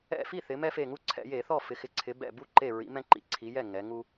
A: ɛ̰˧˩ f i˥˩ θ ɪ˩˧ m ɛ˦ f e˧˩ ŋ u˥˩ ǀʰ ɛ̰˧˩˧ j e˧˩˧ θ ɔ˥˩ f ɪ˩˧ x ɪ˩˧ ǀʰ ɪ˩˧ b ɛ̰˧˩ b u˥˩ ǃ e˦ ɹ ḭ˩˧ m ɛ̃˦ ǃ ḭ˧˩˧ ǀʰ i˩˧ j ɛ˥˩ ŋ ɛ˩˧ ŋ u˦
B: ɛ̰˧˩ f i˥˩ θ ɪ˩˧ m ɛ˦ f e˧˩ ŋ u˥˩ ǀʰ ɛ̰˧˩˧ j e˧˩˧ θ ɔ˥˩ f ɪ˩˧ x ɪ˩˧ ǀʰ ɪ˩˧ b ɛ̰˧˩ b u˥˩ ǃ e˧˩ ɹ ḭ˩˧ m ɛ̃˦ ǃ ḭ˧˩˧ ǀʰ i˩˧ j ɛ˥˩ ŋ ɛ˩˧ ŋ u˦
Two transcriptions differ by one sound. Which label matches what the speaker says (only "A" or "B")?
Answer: B